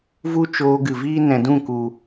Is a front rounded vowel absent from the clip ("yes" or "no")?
yes